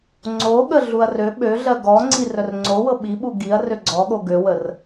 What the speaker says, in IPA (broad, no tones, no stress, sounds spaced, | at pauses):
ŋ͡ǀ o ɠ ə ɮ u ɐ̯ r ø ɓ ø ɮ ɜ ɡ ɔ ŋ͡ǀ i r œ r ŋ͡ǀ o w ɤ ɓ i ɓ u ɡ i ɐ̯ r ø ɡ͡ǀ ɔ ɠ o ɡ ø w ə r